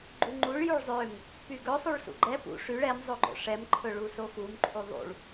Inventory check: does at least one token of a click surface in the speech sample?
yes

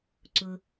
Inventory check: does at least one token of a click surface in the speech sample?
yes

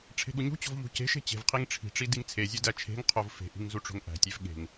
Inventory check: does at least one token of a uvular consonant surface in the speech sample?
yes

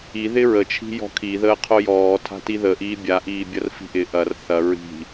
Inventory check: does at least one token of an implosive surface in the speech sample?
no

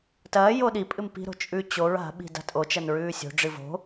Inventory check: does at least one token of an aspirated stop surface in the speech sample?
no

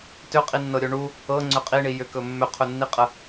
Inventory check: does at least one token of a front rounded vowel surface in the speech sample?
yes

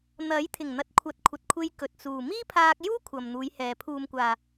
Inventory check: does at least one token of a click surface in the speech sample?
no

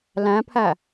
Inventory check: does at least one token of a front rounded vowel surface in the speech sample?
no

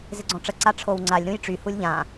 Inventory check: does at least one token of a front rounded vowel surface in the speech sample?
yes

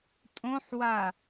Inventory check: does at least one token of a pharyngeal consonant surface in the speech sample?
yes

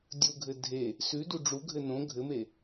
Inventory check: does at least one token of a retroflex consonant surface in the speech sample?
yes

